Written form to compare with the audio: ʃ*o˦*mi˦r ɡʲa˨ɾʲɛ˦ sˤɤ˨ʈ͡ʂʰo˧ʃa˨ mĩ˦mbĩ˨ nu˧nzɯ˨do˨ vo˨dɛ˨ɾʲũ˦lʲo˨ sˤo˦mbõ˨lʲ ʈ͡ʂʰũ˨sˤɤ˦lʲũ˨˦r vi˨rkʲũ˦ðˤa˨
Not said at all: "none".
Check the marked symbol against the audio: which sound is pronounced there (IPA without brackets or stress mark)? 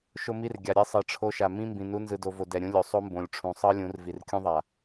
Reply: o˦